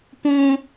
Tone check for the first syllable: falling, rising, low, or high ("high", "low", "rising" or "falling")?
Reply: high